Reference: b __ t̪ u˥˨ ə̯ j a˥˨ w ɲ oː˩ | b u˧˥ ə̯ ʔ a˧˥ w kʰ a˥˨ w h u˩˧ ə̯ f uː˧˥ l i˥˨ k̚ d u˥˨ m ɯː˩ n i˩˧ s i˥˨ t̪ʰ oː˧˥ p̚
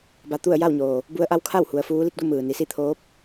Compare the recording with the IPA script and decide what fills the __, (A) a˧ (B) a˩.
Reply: A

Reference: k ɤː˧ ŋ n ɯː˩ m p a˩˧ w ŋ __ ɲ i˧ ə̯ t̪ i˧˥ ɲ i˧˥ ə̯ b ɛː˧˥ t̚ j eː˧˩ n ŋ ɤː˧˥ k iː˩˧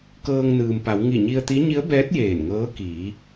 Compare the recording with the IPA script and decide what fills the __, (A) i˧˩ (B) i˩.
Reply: A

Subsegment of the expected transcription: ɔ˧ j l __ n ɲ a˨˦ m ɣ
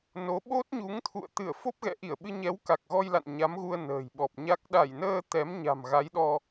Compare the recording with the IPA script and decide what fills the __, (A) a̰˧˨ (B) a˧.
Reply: A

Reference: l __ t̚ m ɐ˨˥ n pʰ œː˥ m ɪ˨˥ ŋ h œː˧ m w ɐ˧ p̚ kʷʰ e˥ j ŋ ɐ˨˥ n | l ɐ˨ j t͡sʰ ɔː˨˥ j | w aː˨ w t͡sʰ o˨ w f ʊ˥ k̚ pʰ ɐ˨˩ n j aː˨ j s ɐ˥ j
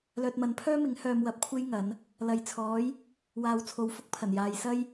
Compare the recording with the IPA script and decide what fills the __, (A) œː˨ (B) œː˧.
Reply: A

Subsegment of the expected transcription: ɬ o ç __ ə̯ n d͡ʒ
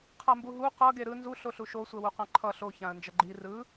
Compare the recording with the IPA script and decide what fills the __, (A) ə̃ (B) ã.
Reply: B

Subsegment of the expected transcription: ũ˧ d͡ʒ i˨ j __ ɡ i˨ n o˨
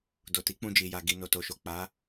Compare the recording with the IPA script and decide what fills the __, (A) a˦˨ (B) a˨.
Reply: B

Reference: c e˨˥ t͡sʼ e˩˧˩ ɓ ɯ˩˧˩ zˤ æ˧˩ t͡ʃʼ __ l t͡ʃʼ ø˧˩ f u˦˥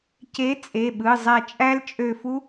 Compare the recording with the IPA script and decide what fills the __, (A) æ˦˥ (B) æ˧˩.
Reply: A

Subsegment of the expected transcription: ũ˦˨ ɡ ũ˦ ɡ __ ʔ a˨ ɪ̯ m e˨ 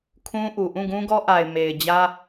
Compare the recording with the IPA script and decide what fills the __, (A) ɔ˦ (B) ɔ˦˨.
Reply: A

